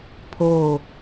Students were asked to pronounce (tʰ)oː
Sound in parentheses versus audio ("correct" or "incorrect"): incorrect